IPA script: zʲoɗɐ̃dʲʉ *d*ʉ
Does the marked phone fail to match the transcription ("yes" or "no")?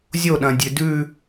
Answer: no